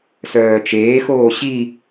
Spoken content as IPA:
s œː t͡ʃ eː x oː ɕ i

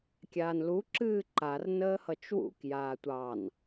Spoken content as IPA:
kʲ aː n l u ǁ ɨː ǃ a r n əː h ʌ t͡ʃ w ṵ k j aː tʷ ɑ n

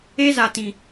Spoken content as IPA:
e˦ z a˨ t ĩ˨

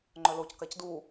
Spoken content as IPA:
ŋ͡ǃ œ l o c k a c d u

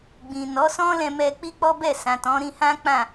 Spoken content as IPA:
ɡ͡b ĩ˨ n ɔ˨˦ s ɔ̃˦ l ɛ̃˧ m ɛ˧ k͡p i˦ k͡p ɔ˦ b ɛ˦˨ s ã˨ t ɔ̃˨˦ ɾ ĩ˧ h ã˦ k͡p ã˦˨

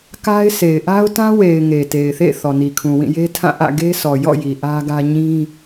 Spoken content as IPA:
k a˦ ɪ̯ sʰ e˨ ɪ̯ ʔ a˦ ʊ̯ t ã˦ w e˨ ɪ̯ ŋ e˨ t e˨ ɪ̯ θ ḛ˦˨ θ ɔ˨ n i˨ kʰ ũ˨ w ĩ˦˨ j e˦ tʰ ã˦˨ ʔ ä̰˦˨ ɡ e˦ s ɔ˨ j ɔ̰˦˨ j i˨ ʔ ä˦ ɡ ä˦ ɲ ĩ˦

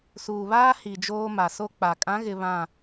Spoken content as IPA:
s uː˨ β aː˦ h i˨ d͡ʒ oː˦ m a˨ s o˦ k͡p a˨ kʼ ã˨˦ ɣ ɪ˨ β ã˦˨

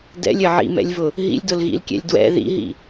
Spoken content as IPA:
d ɛ̰ lʲ ɘ ʕ ḭ m ɛ̰ lʲ v ʊ | ɦ ḭ lʲ d ʊ l ɣ ḭ l kʲ ɛ̰ lʲ d w ɛ̰ ð ḭ ɦ ḭ

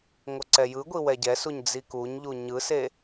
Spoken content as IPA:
ŋʷ ʌ ǀ ɛ j ɯ ɡʷ i w ɛ ɟ ɛ s u ɲ d͡z i k u ɲ ʎ u ɲ ɯ s e

